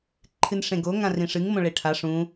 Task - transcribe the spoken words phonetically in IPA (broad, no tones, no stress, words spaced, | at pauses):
ǃʰɨnʂẽɡo ŋãrĩʂɨŋ mõɭeʈʰa ʂũ